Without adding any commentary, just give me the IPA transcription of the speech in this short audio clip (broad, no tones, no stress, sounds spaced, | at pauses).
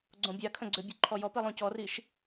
ɡ͡ǀ õ bʲ a kʰ ə̃ ɡ͡ǀ ʏ bʲ o ǃʰ ɔ j ɔ p i lˠ õ c ɔ r i ʃ